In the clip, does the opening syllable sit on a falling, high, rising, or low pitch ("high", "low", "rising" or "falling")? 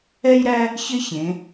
high